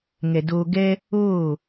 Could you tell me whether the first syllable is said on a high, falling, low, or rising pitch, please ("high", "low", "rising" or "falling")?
low